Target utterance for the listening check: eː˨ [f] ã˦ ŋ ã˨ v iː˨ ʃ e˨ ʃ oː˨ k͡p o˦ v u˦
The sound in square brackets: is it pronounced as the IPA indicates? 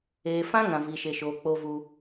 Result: yes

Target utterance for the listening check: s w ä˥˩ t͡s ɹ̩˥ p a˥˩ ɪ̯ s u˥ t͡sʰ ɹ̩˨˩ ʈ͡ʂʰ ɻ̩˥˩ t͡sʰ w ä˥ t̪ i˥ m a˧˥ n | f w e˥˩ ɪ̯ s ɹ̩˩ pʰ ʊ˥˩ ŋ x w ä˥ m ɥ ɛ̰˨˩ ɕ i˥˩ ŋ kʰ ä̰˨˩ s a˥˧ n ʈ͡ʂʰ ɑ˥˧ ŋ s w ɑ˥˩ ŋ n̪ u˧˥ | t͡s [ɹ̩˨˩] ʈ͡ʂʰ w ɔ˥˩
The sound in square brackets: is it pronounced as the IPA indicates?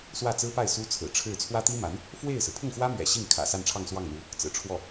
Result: yes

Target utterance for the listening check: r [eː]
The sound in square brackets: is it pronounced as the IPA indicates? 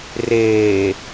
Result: yes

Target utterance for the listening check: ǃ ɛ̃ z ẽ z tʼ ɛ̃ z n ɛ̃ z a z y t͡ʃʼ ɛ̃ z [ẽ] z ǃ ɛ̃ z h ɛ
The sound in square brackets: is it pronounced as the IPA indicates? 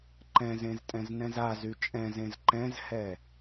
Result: yes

